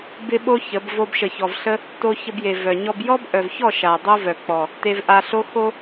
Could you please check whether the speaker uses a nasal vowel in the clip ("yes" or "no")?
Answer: no